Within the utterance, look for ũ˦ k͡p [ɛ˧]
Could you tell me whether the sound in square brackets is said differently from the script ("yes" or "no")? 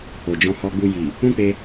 yes